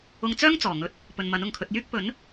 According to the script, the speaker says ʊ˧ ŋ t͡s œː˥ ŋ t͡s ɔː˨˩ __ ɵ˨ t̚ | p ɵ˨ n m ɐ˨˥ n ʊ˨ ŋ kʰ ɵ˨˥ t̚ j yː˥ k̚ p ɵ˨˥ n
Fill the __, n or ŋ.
ŋ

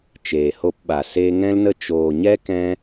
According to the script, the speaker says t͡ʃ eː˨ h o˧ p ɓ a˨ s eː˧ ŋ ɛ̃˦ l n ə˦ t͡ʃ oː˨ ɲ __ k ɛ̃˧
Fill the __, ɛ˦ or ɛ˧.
ɛ˦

